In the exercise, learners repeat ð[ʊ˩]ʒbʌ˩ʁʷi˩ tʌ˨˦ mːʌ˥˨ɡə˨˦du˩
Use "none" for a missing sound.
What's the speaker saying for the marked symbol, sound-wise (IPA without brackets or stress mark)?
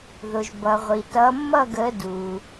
ʊ˩